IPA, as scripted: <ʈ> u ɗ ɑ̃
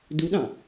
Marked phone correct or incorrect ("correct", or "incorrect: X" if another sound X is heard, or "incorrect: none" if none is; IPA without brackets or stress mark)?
incorrect: d